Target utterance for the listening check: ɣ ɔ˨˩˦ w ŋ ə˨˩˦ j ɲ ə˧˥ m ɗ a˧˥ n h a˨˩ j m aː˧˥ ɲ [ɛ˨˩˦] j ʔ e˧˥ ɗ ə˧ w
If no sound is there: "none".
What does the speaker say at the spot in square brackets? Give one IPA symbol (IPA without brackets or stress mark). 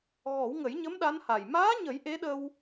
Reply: ə˨˩˦